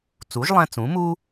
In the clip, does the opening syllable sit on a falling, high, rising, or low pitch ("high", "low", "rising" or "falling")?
rising